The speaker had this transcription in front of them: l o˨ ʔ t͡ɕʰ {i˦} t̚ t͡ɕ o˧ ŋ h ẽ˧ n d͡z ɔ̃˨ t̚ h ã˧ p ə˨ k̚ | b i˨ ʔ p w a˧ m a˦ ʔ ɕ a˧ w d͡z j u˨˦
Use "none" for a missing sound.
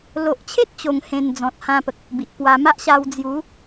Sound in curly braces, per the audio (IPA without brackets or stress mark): e˦